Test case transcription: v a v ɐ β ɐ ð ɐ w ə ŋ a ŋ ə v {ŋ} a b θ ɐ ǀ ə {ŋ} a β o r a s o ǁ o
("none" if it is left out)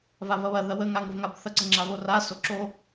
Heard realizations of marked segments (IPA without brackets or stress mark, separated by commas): ŋ, ŋ͡ǁ